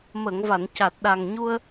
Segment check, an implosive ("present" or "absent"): present